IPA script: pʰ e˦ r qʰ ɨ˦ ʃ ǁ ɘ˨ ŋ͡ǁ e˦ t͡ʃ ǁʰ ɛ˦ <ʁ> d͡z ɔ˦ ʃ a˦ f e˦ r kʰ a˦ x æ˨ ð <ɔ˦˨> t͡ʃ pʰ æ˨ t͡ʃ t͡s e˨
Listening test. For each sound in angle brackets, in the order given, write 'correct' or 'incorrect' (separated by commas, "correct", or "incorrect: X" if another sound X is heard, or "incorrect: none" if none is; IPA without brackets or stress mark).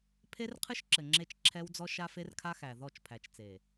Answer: incorrect: w, correct